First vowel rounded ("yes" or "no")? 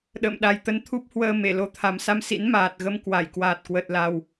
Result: no